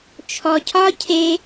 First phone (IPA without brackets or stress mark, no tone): t͡ʃʰ